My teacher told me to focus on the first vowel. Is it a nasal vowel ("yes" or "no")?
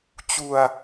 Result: no